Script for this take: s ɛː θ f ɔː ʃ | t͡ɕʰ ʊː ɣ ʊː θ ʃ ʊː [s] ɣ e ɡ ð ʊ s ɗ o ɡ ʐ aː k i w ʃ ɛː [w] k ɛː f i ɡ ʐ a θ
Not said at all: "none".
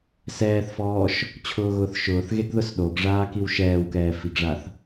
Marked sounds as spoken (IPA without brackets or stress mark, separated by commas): θ, w